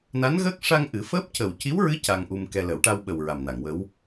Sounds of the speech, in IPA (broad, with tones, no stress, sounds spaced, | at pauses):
n a˧˥ n ɣ əː˦˥ k̚ ʂ a˧ ŋ ʔ ɨ˨˩˦ f əː˦˥ p̚ c ə˨˩ w c i˧˥ w ɹ ɨ˧˥ c a˧ ŋ ʔ u˧ m k ɛ˧ l ə˨˩˦ w ʈ a˧ w ɓ ə˨˩ w ɹ a˨˩ m n a˨˩˨ ŋ w ə˧˥ w